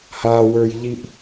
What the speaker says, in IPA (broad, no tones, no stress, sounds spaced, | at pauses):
h a w ə˞ j ʎ i ʔ